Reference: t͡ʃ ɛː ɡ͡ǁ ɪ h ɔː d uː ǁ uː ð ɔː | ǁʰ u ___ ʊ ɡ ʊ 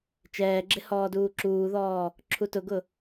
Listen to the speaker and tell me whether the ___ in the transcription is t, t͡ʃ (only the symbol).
t